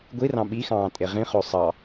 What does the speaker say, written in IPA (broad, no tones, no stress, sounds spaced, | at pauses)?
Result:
ɡʷ i r ɑ̃ ɓ i x ɑ̃ː tʼ e ʁ ĩ χ o sˤ ɑ